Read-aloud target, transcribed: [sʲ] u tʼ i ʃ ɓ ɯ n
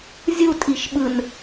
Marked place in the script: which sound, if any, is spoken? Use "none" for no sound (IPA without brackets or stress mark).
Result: zʲ